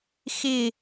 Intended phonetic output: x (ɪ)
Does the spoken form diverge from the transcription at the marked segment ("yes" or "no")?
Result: no